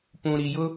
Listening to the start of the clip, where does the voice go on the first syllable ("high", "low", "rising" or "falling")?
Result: low